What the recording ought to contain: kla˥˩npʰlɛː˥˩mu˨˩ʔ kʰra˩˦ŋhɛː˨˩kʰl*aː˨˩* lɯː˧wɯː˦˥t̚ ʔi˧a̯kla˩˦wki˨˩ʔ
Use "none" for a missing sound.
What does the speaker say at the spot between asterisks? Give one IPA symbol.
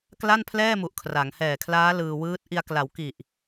aː˦˥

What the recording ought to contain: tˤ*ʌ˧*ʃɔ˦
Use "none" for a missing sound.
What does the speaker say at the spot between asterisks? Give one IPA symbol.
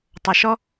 ʌ˧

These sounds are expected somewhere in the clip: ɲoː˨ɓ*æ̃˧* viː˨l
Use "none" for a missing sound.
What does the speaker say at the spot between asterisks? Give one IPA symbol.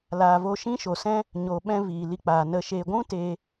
ɛ̃˧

